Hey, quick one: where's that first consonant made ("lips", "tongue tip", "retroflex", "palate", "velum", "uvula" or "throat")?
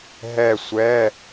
throat